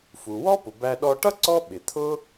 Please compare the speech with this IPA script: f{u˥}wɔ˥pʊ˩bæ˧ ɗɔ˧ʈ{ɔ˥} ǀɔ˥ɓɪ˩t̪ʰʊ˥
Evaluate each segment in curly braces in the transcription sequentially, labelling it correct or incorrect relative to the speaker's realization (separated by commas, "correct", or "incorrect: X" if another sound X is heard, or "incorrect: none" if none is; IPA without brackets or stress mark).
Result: incorrect: u˩, incorrect: ʌ˥